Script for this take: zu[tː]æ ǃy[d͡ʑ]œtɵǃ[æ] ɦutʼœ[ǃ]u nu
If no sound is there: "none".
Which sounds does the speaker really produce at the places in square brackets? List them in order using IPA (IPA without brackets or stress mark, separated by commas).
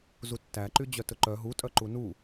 tː, d͡ʑ, œ, ǃ